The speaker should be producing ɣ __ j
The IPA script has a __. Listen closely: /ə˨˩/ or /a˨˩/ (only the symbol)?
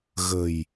ə˨˩